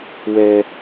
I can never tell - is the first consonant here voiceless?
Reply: no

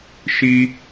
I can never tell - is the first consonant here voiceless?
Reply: yes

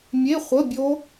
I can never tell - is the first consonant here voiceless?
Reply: no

